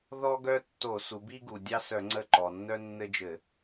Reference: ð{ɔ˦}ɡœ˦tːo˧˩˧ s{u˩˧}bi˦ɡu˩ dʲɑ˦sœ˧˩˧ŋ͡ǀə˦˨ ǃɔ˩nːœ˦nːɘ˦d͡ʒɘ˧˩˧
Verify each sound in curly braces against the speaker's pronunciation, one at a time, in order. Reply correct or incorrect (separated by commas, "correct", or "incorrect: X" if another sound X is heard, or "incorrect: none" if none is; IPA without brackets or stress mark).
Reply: correct, correct